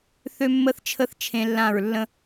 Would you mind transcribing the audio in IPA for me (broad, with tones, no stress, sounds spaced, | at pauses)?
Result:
θ ø˦ mː ə˦ θ t͡ʃʰ ə˦ θ t͡ʃʰ ẽ˦ lː ã˦˨ ɹ lː ə̃˦